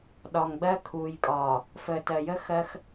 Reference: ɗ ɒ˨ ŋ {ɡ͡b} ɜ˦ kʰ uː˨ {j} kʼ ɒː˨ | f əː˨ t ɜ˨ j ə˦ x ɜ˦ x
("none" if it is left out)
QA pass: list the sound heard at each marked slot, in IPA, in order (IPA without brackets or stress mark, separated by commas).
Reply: ɡ͡b, j